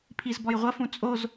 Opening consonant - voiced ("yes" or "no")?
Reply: no